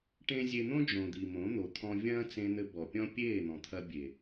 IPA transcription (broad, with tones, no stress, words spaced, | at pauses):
ʈẽ˦ zʲe˧n̪õ˦d͡ʒõ˨ d̪i˨mõ˨˦n̪o˨ t̪ʰɔ̃˧vʲɐ̃ː˦t͡sẽ˧n̪ɘ˧ bɔ˨pʲɔ̃˦ pʲeː˦˨n̪ɔ̃˨t̪ʰɐ˧ bʲe˨